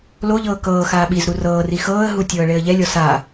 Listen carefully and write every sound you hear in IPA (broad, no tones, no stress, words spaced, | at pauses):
loʎɤː kɤːxaː ɓizɾu rɤːri xɤːə̯ɦutʲɤːɭeə̯ ʎɛlʲɔ sa